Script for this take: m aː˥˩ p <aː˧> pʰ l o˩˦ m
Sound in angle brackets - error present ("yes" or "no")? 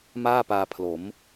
no